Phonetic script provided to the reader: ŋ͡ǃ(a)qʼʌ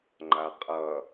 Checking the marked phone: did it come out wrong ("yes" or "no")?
no